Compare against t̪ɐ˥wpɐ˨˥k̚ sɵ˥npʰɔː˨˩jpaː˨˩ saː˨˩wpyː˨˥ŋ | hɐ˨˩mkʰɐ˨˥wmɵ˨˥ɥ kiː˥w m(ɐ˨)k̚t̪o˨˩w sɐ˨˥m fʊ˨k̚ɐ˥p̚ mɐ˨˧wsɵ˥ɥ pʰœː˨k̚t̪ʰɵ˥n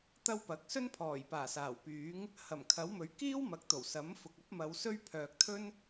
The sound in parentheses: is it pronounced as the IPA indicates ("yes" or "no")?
no